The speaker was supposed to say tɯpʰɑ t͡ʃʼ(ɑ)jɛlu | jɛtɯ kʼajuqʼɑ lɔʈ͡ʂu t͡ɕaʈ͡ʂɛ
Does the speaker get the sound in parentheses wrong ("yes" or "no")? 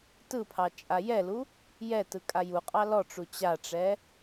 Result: yes